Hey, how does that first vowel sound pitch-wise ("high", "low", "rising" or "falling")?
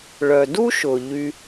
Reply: low